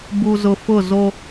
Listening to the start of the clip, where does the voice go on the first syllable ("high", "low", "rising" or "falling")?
low